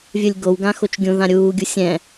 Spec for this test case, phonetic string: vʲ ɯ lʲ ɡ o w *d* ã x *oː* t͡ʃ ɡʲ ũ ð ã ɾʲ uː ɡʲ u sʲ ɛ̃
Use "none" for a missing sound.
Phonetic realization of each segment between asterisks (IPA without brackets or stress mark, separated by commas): ɡ, o